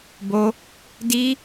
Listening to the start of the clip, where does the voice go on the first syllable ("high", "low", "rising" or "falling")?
high